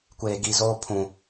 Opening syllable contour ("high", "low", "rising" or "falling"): low